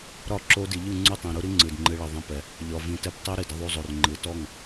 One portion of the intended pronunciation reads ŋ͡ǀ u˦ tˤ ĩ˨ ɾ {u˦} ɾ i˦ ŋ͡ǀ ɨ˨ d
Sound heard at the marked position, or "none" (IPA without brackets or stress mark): u˦